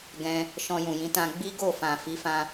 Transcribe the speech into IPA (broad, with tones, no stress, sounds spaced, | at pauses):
ɡ ɛ̃˧ | ʃ ɔ̃˧ j ũ˨ j ĩ˨˦ t ã˧ ɡ͡b i˦ ɡ o˦˨ f ã˨ f i˨˦ f ã˦